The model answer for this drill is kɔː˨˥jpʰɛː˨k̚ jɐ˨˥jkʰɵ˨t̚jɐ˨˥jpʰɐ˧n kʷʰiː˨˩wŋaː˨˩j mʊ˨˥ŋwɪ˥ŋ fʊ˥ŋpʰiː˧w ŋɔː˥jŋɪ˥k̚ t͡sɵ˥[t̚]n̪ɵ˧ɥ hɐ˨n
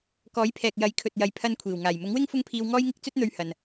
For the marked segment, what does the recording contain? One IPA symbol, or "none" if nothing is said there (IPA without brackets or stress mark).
t̚